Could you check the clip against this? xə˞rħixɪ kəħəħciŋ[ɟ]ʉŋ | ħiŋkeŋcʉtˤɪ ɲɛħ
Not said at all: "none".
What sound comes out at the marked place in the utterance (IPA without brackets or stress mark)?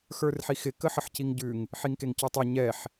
ɟ